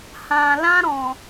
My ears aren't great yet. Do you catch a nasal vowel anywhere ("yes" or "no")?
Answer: yes